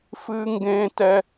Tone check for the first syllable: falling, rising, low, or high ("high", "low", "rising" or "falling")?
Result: high